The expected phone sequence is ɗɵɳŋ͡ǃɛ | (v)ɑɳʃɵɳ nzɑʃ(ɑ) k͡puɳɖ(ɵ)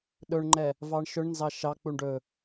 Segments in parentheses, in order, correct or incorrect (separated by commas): correct, correct, correct